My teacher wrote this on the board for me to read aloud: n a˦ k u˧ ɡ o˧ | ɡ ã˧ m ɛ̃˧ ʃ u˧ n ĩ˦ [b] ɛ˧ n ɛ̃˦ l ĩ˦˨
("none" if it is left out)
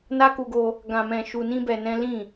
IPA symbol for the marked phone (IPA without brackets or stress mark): b